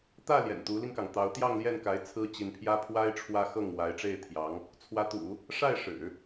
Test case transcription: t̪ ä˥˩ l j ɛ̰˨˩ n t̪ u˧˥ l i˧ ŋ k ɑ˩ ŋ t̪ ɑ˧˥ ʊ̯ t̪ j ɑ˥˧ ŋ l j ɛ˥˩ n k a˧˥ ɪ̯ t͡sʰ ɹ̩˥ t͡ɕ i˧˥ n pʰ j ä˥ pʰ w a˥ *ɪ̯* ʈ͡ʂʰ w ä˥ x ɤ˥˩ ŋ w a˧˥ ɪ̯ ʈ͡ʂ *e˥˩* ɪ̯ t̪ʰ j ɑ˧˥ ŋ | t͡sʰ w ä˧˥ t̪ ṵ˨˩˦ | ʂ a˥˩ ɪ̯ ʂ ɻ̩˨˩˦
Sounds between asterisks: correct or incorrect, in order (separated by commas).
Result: correct, correct